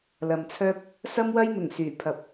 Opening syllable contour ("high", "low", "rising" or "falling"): low